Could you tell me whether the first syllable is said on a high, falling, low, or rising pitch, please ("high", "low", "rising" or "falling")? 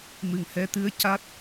low